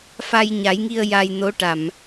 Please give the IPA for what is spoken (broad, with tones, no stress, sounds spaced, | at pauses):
f a˧ j ɲ a˨˩˦ j ŋ i˧ ə̯ j a˧ j n o˧˥ ʈ a˨˩˨ m